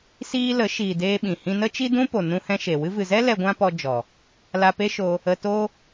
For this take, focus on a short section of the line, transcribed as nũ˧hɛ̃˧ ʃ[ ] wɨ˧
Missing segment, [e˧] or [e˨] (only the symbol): e˨